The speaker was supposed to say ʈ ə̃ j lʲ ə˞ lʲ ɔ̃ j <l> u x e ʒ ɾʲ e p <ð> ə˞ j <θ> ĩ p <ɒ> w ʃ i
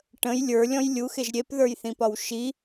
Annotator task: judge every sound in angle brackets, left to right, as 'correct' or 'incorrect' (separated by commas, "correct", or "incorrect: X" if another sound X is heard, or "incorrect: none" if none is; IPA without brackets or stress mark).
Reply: incorrect: lʲ, correct, correct, correct